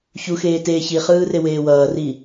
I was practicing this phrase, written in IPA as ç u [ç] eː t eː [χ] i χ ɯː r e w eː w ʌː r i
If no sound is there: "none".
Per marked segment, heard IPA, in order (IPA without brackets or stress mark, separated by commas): x, ç